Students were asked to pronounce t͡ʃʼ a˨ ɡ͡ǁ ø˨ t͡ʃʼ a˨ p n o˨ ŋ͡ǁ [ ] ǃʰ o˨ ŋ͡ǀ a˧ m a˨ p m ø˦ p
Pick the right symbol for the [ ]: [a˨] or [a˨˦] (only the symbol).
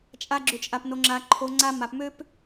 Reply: a˨